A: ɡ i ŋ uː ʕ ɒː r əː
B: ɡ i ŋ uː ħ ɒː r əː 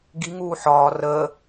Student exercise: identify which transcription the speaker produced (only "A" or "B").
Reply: B